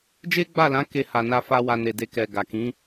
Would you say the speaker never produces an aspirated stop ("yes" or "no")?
yes